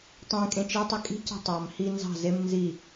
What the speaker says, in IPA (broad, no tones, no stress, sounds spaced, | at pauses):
tˤ ẽ kʼ ẽ t͡ʃ e tˤ i kʼ i̤ c ɑ̤ tˤ ɑ m h i n z ɑ̤ z e m n z i